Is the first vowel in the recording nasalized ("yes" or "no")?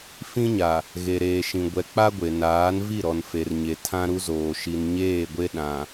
yes